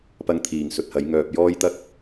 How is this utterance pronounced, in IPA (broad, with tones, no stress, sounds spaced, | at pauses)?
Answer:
p ɐ˧ ŋ t̪ʰ iː˨˩ ŋ s ɵ˨ t̚ h ɐ˨˥ j ŋ œː˨ p̚ j ɔː˥ j t̪ ɐ˥ k̚